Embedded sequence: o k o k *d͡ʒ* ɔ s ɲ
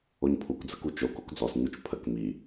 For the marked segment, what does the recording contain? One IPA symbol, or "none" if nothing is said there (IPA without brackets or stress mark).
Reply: d͡z